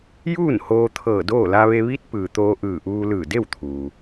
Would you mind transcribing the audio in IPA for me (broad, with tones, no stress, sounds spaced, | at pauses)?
j uː˥˨ n h oː˧ t̪ʰ ɤː˧˩ d oː˥˨ l a˧ ʋ e˧ ʋ i˧˥ t̚ p ɯː˩ t̪ oː˧ ʔ ɯː˧˩ ʔ uː˧ l ɯː˧˩ d e˥˨ w t̪ʰ uː˩